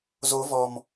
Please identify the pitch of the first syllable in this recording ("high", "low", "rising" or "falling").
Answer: rising